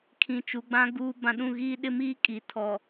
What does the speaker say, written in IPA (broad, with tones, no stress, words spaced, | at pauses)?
kʰĩ˨t͡ʃu˨ɡ͡bã˦ ɡuː˦bã˦ ɗũ˦˨ɣiː˦ɗɪ˦miː˦ kʼi˨tʰɔ˨